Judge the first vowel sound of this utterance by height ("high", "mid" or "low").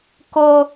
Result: mid